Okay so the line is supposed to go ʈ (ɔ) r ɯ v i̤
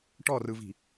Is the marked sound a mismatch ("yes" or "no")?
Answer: no